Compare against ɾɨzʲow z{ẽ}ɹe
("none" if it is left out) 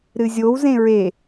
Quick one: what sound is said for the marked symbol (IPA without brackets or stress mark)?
ẽ